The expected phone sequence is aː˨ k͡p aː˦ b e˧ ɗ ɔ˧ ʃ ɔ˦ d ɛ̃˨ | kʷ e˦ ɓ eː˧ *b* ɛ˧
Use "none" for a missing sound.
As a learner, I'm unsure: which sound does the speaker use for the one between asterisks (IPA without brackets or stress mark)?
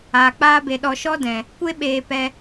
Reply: p